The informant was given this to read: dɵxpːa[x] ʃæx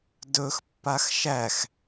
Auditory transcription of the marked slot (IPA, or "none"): x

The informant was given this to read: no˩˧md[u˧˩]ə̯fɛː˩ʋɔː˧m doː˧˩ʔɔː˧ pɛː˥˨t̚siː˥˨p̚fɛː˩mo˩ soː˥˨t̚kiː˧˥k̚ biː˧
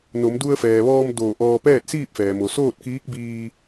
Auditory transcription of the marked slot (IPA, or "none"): u˧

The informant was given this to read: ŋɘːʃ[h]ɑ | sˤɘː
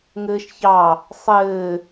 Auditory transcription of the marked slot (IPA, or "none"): ç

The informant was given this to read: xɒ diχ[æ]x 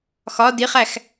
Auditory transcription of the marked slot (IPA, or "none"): æ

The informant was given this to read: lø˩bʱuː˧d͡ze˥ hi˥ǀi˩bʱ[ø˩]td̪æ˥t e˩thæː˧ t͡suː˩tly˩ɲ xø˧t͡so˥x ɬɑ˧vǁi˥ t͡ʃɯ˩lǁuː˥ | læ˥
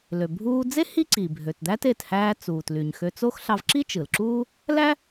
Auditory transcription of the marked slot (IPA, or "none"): ø˩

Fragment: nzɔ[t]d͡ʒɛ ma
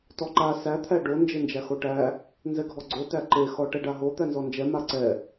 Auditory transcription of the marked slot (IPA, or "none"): n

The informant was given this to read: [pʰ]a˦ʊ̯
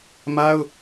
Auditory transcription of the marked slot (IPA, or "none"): m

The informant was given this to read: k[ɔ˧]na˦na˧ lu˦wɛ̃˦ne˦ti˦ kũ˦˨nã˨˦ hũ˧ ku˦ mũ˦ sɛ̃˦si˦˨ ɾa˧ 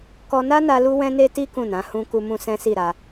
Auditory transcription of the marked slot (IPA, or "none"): ɔ˧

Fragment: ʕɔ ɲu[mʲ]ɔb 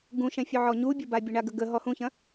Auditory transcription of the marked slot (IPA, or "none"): bʲ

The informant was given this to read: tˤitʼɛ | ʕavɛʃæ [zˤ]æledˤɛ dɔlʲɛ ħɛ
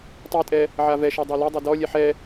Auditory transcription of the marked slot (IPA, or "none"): dˤ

